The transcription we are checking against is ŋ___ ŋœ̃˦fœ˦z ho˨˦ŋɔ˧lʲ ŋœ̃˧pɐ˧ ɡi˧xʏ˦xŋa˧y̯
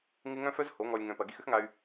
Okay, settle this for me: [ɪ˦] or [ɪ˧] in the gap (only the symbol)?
ɪ˦